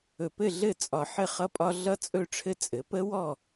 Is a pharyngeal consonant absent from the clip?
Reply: no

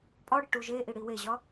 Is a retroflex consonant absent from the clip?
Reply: no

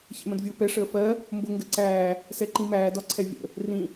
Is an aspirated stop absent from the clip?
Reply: no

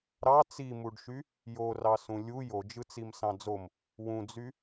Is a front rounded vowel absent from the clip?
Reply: no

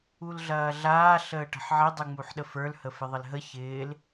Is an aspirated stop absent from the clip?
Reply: yes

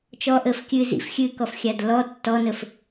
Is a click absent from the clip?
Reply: yes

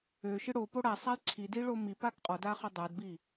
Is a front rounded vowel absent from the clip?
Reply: no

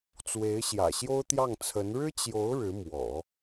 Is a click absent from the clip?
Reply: yes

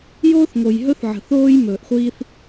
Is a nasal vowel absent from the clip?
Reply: yes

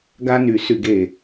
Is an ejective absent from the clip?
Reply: yes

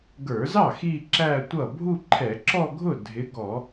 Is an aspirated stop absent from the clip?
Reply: no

